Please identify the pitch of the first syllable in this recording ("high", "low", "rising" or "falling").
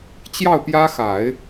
falling